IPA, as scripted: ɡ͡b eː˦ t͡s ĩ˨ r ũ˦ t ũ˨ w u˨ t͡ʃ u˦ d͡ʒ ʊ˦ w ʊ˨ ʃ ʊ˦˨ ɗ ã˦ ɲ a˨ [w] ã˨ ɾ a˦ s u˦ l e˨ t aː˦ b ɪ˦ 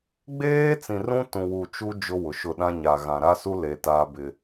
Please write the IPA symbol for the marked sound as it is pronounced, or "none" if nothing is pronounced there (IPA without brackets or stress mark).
ɣ